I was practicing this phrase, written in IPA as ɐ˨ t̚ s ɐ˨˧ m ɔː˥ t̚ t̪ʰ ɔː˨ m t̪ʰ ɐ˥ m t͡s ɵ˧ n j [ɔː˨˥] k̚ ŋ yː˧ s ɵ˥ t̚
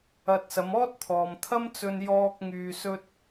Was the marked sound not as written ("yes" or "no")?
yes